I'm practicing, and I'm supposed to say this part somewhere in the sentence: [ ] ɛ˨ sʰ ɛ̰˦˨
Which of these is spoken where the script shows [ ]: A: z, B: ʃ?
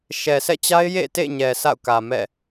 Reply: B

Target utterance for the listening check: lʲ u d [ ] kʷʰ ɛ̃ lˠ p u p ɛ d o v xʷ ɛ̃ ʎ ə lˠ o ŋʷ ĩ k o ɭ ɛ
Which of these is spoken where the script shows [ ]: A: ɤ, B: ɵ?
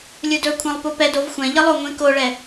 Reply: B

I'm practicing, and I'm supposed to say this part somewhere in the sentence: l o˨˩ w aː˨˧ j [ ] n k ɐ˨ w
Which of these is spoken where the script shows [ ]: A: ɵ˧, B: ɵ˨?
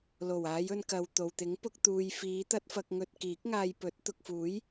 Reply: A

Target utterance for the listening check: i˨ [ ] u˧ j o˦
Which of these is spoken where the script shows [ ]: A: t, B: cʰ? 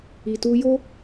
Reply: A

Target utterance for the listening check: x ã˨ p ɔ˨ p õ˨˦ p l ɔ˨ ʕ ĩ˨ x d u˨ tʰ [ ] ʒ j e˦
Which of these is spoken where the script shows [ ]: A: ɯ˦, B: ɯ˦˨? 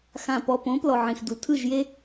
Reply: B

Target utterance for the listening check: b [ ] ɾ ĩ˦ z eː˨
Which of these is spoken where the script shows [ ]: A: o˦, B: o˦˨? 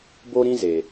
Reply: A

